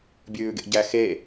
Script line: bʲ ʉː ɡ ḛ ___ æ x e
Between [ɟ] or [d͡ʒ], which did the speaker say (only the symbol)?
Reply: ɟ